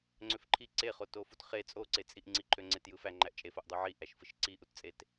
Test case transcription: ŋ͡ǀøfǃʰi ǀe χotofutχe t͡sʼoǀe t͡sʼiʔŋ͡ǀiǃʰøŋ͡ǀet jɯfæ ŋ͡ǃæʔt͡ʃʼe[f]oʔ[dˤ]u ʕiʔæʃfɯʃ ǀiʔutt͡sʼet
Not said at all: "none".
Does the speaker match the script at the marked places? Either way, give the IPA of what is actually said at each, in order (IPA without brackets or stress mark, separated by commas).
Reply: f, dˤ